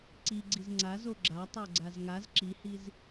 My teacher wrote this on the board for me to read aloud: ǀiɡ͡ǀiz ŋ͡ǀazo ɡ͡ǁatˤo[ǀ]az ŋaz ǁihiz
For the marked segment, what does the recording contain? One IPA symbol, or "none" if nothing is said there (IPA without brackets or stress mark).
ɡ͡ǀ